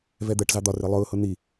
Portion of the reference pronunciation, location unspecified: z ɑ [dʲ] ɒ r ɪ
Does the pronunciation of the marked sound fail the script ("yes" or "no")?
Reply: yes